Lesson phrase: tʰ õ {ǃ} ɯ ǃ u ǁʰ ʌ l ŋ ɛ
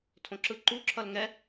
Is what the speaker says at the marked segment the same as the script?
no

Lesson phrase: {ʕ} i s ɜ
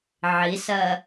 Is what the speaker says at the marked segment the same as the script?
yes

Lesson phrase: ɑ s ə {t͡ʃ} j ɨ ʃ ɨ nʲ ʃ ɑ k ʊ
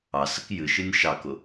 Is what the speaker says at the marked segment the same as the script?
no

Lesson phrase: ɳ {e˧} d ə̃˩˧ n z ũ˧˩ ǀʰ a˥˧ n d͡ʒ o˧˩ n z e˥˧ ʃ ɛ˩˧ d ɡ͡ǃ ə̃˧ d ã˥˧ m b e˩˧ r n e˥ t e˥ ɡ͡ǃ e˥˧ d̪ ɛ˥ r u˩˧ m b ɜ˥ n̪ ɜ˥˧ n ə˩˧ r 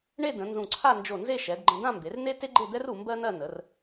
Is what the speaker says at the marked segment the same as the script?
no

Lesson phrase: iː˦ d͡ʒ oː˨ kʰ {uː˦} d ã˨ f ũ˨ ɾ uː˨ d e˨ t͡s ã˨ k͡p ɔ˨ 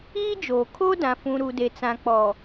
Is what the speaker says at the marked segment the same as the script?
no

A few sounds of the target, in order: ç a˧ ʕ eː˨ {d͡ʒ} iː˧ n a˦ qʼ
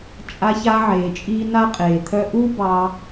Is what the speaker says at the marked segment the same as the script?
no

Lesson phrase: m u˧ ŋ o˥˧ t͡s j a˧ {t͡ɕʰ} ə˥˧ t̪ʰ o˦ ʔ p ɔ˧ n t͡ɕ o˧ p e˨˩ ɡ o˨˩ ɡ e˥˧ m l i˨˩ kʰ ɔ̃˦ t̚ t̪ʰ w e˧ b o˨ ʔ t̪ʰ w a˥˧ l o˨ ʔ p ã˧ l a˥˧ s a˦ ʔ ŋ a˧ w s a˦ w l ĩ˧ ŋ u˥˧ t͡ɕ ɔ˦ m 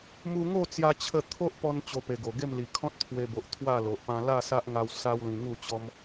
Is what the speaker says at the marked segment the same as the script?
yes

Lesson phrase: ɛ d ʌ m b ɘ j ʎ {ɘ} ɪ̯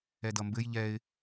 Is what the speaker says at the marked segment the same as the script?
no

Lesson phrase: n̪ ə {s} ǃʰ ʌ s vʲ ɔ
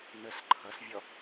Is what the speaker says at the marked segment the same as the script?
yes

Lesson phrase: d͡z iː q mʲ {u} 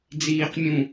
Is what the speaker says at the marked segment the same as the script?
no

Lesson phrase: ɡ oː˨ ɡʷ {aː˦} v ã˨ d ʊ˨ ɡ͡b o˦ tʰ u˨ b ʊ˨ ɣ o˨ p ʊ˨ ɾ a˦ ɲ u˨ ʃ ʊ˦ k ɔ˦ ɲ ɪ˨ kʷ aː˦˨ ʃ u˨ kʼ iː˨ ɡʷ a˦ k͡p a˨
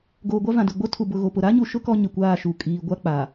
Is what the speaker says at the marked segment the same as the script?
no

